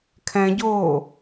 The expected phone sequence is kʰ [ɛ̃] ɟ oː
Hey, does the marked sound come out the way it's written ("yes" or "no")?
yes